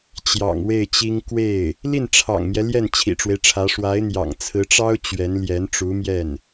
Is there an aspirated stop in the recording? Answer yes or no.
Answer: yes